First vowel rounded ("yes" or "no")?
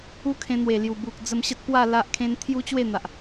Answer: yes